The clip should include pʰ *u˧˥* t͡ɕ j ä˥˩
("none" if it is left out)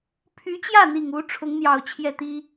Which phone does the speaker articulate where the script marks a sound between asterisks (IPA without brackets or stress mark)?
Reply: y˧˥